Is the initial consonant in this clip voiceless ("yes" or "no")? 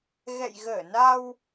no